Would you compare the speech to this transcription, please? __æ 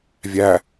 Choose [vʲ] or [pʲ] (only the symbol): vʲ